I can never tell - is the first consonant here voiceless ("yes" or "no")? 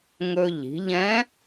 no